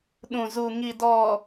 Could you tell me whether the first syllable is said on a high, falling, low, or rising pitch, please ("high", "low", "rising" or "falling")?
low